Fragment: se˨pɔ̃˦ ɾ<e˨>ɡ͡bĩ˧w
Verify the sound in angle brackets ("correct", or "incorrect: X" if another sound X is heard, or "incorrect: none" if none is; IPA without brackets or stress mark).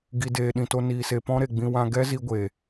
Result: correct